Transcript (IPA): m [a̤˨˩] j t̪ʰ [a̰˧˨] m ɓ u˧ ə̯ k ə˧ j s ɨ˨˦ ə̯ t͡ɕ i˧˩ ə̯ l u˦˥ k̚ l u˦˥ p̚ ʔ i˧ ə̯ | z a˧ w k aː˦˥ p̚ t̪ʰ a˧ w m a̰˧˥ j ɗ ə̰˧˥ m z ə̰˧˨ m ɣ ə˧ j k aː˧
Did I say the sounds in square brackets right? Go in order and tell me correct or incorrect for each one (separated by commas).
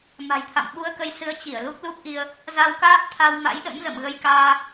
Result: correct, correct